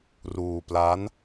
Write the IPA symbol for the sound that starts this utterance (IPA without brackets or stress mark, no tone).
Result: r